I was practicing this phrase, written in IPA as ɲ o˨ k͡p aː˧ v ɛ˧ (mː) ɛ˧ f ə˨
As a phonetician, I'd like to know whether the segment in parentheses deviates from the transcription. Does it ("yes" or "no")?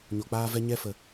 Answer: yes